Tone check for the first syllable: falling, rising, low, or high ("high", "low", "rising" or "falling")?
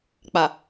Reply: low